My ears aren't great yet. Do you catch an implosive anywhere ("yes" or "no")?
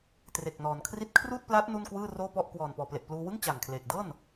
no